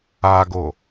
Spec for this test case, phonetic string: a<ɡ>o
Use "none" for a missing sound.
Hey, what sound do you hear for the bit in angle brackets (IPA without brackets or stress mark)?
ɡ